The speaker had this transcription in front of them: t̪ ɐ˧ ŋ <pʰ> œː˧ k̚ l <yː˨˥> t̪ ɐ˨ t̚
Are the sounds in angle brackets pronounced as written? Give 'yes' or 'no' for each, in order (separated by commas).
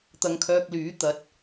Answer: no, yes